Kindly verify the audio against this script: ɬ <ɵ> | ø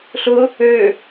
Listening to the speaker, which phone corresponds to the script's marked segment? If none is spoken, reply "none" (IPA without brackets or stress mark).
ʊ